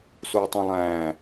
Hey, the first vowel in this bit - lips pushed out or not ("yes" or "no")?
yes